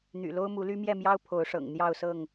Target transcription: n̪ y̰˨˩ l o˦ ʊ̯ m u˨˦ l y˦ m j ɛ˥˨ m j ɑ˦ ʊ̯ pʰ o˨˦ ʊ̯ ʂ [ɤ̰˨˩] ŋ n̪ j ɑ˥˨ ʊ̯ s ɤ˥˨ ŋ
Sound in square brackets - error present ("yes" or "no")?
no